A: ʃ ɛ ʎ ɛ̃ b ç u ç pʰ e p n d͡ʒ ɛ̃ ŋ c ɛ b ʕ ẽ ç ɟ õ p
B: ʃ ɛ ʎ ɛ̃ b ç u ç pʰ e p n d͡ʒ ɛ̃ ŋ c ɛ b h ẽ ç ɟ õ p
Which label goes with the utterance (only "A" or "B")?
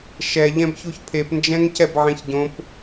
A